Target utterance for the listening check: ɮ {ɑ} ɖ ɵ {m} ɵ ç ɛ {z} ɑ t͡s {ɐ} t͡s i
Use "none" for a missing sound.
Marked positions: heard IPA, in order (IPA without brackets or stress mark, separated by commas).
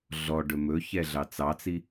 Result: ɔ, m, ɮ, ɑ